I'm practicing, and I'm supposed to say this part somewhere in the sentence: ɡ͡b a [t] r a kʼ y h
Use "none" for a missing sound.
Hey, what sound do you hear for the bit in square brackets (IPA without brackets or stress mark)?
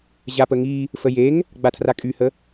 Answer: tʰ